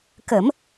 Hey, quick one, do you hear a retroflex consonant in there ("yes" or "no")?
no